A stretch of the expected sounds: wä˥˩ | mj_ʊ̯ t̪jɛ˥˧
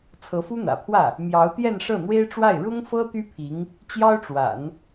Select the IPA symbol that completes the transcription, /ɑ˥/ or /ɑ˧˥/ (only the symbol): ɑ˧˥